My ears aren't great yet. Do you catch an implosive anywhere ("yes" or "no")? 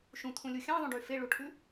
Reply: no